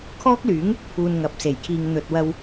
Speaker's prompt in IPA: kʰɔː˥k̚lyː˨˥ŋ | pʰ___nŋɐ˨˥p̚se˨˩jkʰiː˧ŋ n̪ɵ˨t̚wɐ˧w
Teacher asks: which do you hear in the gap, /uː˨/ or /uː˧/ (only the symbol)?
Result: uː˧